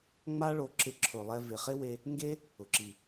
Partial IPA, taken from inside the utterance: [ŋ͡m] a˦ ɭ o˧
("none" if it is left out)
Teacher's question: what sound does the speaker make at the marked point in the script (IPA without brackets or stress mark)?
ŋ͡m